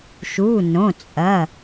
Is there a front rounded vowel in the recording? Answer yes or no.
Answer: no